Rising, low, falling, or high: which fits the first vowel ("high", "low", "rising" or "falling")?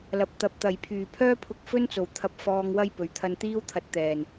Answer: low